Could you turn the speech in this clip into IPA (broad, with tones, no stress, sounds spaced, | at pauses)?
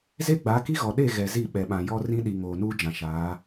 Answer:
z e˦ ɡ͡b a˨˦ k i˦ ɣ ɔ˨ ɗ e˦˨ ɣ ɛ˨ z i˦˨ ɓ ɛ˨ ɓ ã˨ j ɔ˦ r ĩ˦ ɗ i˨ ŋ oː˨ n uː˦ d͡ʒ ã˨ ʃ aː˨˦